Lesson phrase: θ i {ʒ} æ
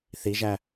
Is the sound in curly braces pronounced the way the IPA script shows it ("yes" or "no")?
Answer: yes